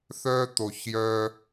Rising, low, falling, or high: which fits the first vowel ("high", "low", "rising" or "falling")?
high